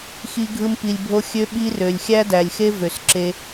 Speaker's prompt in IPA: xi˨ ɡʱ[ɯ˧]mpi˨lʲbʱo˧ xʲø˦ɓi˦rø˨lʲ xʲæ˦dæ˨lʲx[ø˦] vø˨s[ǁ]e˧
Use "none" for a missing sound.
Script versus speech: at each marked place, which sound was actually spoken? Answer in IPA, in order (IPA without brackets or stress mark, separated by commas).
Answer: ɯ˧, e˦, ǁ